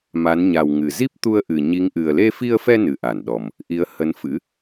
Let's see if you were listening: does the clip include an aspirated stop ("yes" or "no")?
no